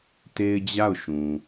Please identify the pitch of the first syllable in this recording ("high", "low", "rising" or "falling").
high